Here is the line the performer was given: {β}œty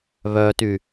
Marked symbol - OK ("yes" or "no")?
yes